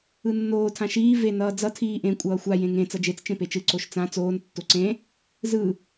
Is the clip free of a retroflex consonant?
yes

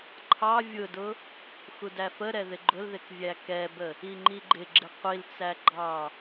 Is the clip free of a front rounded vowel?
yes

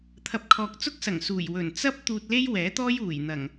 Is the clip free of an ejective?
yes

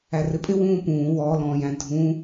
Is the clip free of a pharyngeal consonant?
yes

